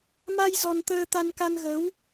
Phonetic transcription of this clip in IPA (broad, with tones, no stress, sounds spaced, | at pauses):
m a˧ j z ɔ˧ n t̪ əː˧ t̪ a˧ n k a˧ n ɣ ə˨˦ w